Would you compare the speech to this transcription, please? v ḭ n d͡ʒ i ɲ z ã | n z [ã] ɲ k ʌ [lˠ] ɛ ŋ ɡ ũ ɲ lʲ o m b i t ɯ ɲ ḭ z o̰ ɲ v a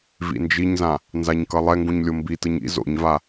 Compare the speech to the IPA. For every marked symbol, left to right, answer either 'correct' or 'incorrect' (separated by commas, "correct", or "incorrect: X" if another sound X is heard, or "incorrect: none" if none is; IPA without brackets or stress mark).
incorrect: a, correct